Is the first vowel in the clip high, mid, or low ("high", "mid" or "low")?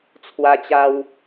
low